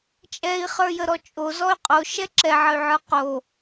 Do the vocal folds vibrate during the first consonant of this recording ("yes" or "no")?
no